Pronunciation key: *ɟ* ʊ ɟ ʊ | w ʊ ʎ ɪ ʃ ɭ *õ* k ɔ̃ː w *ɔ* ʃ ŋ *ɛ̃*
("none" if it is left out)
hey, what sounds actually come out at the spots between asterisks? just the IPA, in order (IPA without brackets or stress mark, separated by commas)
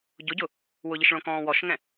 ɟ, õ, ɔ, ɛ̃